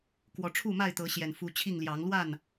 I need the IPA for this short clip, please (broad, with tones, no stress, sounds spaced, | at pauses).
k w ɔ˨˦ ʈ͡ʂʰ u˥˨ m a˥˨ ɪ̯ t̪ ɤ˨˦ ɕ j ɛ˨˩ n f u˨˦ t͡ɕʰ i˥˨ ŋ l j ɑ˨˦ ŋ l w a˥˨ n